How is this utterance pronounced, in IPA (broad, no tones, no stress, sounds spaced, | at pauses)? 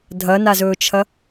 dʱ ɐ n a z ɵː t͡ʃʰ ɐ